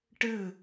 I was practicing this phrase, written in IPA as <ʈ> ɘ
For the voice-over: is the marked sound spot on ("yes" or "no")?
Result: yes